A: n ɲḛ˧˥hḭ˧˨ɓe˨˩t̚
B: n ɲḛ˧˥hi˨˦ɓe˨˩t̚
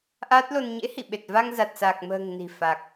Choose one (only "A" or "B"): A